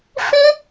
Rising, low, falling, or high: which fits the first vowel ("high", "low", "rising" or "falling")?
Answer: high